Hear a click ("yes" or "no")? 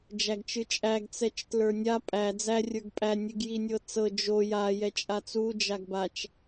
no